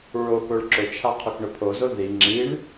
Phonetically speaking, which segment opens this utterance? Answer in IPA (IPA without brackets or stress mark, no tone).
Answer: ɹ